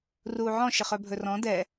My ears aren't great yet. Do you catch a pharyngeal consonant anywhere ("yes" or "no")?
yes